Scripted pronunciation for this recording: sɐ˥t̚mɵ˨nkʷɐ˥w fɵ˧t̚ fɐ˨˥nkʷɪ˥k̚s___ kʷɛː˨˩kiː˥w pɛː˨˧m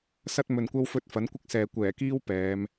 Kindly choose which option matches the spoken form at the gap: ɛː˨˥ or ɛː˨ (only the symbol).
ɛː˨